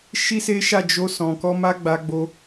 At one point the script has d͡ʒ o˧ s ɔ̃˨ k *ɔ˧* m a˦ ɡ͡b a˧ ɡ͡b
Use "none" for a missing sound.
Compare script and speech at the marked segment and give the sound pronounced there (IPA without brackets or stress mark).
ɔ˧